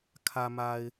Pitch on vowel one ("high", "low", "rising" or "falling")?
low